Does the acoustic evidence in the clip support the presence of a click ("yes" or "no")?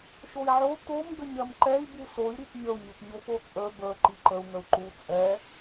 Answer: yes